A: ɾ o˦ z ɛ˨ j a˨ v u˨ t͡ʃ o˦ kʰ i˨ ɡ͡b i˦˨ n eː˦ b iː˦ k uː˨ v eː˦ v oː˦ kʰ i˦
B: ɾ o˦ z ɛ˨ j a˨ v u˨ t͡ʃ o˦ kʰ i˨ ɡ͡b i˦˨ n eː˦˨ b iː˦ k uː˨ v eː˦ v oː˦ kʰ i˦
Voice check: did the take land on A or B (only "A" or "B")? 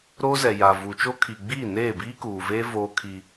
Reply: B